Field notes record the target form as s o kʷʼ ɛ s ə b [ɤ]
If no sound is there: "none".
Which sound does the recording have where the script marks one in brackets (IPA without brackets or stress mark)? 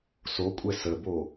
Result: o